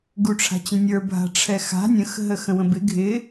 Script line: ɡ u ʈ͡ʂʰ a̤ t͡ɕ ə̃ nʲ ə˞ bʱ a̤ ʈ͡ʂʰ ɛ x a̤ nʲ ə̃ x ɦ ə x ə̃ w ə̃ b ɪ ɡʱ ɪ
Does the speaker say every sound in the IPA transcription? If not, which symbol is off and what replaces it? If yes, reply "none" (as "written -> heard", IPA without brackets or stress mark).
none